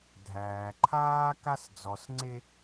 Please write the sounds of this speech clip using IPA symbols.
dʱ æː˨ ǃʰ aː˦ k a˦ s d͡z ɔ˨ s ŋ͡ǀ e˦

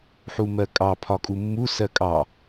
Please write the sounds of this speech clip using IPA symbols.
ħ u m ɜ kʼ ɑ pʰ ɒ kʼ u mː u s ɜ kʼ ɑ

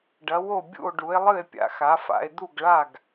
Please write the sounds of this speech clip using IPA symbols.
ɖ ɐ˨˦ w o˦˨ bʲ ṵ˦˨ o̯ ɖ u˨˦ e̯ lˠ ɨ˦˨ e̯ pʲ a̰˨˦ x a˨˦ f a̰˨˦ e̯ d̪ u˦˨ ɡ ɭ a˦˨ ɡ

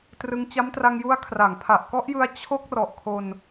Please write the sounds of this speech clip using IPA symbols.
t r ɯ˧ ŋ t͡ɕ a˦˥ m t r a˧ ŋ j u˦˥ a̯ kʰ r a˩˦ ŋ pʰ a˨˩ ʔ k ɔ˦˥ ʔ j ɯ˦˥ a̯ t͡ɕʰ o˦˥ k̚ r ɔ˨˩ ʔ kʰ o˧ n

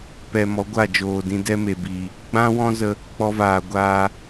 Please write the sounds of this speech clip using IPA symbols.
p ɛ˨ m ɔ˨˦ ɡʷ a˦˨ d͡ʒ oː˨ d ĩ˧ d ɛ˦ m e˨ b i˨ | ɡ͡b ã˦ w ɔ̃˦ z ə˧ | k͡p ɔ˧ v aː˨ ɡʷ aː˧

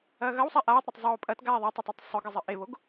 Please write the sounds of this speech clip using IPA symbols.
ɐː ɣ ɐ w sˤ a ʔ aː tˤ ɾ e tˤ zˤ oː pʼ ɐ t ɡ aː ðˤ a tˤ ɨ tˤ a tˤ sˤ ɵ ɡ ɨ zˤ ɨ ʔ e β o ɡ

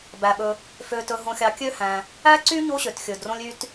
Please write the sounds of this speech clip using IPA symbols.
b æ˩ ɓ ɵ˨ | f ø˨ t ɵ˨ ɦ õ˨ xʲ ɑ˨ kʲ ø˥ h æ̃˨ | æ˥ ǀ y˥ ɲ o˦ ɕ ø˩ t xʲ ɵ˩ d r õ˦ lʲ y˦ t

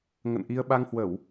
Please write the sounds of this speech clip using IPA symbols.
ŋ ə̰˧˨ n ʔ i˧ ə̯ ɓ a˧ ŋ h w ə˧˩˨ w

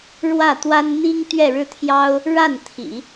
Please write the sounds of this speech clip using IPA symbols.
ɻ w ä˥˩ t̪ w a˥ n n̪ i˥ ŋ t̪ ɥ ɛ˥˧ ɻ ɻ̩˥˩ t̪ʰ j ɑ˥ ʊ̯ | ɻ a˥˩ n t̪ʰ ḭ˨˩˦

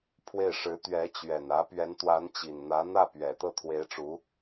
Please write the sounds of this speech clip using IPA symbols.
pʰ w e˥˩ ɪ̯ ʂ ɻ̩˧˥ t̪ ɥ ɛ˧˥ t͡ɕ ɥ ɛ˨˩ n ä˧˥ p ɥ ɛ˧˥ n t̪ w a˧˥ n t͡ɕ i˨˩ n n̪ ä˧˥ n̪ ä˥˩ p ɥ ɛ˨˩ t̪ ɤ˥˩ t̪ʰ w e˧˥ ɪ̯ ʈ͡ʂ u˧˥

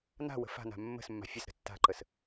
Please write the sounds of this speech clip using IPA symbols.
n a̤ w ə̤ f a̤ n a̤ mː ə̤ s mː a̤ fʲ ə s ɾ ə̤ tː a̤ ǃ ə s

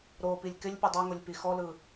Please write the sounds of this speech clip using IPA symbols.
ɾ o p i lʲ k ɪ lʲ pʲ ɯ dˤ ø ŋ o lʲ p i x ɔ l ɯ

